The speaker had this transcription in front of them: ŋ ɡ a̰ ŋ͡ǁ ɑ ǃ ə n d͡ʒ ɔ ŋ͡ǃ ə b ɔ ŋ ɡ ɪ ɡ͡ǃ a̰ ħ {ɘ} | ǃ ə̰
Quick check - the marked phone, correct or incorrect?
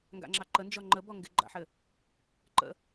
correct